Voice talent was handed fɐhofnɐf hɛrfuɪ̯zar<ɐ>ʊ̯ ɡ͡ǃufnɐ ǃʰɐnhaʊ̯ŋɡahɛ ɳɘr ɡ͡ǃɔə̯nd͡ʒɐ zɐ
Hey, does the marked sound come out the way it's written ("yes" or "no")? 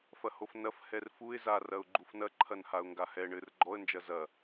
yes